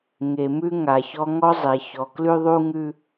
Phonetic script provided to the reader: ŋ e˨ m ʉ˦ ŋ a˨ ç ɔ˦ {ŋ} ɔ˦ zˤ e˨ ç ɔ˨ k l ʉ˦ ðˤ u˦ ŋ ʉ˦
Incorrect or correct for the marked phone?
correct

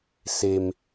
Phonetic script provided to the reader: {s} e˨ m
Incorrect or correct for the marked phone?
correct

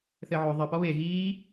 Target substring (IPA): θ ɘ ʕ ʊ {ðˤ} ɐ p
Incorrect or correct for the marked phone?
correct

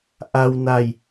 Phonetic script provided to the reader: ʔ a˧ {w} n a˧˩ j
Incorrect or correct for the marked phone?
correct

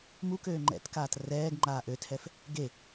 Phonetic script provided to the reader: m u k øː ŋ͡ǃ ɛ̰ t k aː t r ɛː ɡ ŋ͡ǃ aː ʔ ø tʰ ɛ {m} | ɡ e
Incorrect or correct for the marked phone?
incorrect: f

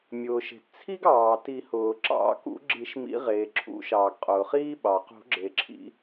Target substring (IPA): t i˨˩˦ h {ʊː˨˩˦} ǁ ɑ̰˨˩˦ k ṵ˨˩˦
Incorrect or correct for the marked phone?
incorrect: ʊː˩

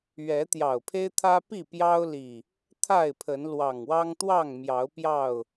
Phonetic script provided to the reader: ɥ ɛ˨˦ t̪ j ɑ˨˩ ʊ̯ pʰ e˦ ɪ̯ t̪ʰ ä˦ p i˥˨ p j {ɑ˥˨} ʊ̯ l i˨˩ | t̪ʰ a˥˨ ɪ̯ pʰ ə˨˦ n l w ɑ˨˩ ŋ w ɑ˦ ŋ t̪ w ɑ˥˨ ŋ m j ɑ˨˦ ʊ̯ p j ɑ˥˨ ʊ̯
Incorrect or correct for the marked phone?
incorrect: ɑ˦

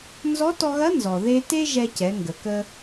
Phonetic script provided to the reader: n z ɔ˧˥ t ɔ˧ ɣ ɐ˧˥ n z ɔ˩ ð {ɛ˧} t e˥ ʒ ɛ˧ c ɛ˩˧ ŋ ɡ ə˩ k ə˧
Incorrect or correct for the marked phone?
incorrect: e˧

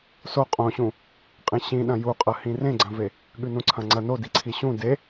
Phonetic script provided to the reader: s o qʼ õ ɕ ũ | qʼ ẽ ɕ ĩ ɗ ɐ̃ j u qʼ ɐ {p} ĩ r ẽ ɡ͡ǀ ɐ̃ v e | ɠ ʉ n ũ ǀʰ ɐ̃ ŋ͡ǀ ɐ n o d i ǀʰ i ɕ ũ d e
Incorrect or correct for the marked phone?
incorrect: h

